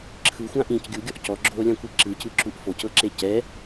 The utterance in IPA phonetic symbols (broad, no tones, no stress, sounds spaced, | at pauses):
ǁʰ ɯ xʷ ã ʔ ĩ c ɡʲ u ɡʲ ɔ ʔ c ɔ ɡ͡ǁ oː lʲ ã kʷ i ǁ ɯ c ɯ ǁ u ʔ f o c ɤ ǁ e c ɛ